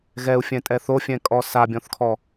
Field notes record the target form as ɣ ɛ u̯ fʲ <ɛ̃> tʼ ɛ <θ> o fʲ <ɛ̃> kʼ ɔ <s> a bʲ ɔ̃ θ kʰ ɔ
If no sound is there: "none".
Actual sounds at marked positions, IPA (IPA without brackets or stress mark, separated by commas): ɛ̃, θ, ɛ̃, s